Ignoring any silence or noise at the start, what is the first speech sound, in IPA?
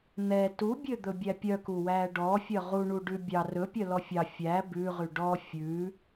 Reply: n̪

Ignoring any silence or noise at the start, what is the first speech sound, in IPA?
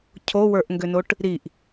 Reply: cʰ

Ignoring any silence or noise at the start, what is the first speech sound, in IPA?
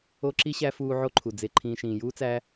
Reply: o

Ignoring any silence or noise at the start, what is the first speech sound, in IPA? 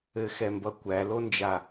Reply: ɘ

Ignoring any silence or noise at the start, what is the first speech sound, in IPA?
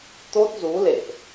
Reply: t̪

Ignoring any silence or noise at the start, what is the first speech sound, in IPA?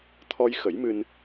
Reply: t̪ʰ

